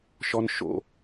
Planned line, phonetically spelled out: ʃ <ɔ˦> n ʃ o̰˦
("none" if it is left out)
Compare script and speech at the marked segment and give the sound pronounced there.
ɔ˦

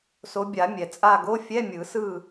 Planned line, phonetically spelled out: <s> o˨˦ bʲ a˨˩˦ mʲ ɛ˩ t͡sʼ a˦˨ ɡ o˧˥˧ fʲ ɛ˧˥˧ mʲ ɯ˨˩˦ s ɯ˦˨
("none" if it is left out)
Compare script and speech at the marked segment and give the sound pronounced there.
s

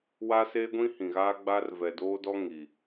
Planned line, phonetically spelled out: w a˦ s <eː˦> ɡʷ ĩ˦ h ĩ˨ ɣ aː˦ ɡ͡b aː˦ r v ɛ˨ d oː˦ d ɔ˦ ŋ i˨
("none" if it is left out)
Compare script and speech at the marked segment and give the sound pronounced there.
eː˦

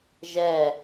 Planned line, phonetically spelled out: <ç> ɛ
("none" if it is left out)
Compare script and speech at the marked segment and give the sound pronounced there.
ʒ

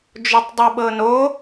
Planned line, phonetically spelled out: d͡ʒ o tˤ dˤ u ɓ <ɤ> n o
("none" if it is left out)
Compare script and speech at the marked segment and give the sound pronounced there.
ɤ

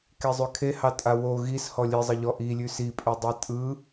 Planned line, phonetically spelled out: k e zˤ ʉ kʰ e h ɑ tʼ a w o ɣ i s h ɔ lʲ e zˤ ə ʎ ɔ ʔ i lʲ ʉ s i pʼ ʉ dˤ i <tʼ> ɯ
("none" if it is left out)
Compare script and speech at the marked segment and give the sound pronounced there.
tʼ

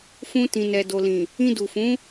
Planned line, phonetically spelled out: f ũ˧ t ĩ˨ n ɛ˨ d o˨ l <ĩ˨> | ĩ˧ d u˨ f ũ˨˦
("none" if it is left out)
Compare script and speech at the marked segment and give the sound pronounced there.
ĩ˨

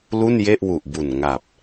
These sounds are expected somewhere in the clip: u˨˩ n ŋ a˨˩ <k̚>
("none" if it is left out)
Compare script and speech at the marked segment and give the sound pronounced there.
p̚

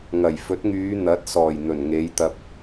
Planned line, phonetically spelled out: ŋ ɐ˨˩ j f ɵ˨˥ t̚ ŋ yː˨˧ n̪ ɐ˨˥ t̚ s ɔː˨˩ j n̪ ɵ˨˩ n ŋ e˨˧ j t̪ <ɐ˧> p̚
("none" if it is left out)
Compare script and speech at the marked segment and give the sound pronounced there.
ɐ˧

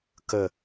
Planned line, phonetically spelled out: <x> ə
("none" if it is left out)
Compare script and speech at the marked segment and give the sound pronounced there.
k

